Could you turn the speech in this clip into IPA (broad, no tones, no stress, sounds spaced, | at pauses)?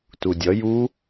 t u dʲ ʌ j u